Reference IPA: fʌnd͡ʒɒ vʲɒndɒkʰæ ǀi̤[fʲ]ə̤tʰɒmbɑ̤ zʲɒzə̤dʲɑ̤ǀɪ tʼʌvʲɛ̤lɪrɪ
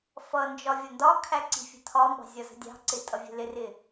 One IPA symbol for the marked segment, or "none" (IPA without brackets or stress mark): fʲ